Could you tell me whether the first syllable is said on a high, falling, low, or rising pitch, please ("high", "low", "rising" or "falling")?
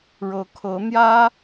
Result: rising